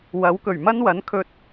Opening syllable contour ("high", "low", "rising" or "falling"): rising